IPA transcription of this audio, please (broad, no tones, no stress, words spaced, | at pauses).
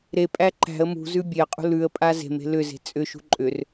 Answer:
ɾepʼæ ǃæ̤ə̯ mṳzʉ bʲeə̯qʼṳ lʉə̯ pʼaze̤me̤ lʏze̤ t͡sʼʏʃṳ ǃʼʏr